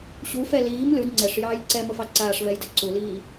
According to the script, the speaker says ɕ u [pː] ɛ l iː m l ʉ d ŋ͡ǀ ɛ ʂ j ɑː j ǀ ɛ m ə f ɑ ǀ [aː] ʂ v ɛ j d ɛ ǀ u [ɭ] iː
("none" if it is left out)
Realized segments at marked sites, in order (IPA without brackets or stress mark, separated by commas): f, aː, l